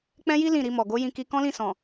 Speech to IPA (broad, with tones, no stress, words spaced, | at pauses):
k͡pɛ̃˦ji˦ lĩ˦˨ɾi˧mɔ˨ ɡo˨˦jĩ˧ki˧ kɔ̃˦lĩ˦˨sɔ̃˨